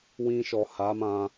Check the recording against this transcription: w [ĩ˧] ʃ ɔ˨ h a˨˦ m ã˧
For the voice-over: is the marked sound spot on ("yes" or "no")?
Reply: yes